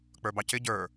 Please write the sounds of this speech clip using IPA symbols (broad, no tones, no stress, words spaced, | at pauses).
k͡pə˞bɑcɪ ɟə˞